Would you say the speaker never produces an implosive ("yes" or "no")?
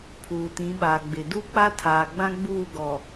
no